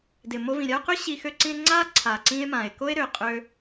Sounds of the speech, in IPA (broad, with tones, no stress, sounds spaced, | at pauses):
d ɪ˨ m o˧ v ĩ˨ ɾʲ a˦ o̯ q ø˦ ɕ i˧ x ø˧ ǀ ĩ˧ e̯ ŋ͡ǀ a˦ ǀʰ a˨ ǀ ĩ˧ e̯ m ã˨ e̯ k o˦ e̯ ɾ ø˨ qʼ ø˧